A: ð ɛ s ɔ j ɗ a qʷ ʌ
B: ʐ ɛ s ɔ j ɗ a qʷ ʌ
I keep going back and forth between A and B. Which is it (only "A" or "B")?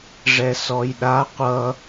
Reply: B